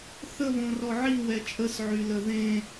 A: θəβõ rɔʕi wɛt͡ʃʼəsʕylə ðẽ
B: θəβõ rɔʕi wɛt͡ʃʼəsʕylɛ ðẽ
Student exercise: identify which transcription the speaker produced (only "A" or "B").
A